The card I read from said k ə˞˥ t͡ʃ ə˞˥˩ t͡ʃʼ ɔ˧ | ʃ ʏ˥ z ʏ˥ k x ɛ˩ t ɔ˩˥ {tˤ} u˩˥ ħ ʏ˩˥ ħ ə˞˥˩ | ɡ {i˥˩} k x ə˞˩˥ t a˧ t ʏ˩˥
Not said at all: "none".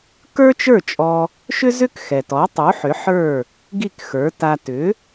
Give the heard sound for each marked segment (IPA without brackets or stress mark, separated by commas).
tˤ, i˥˩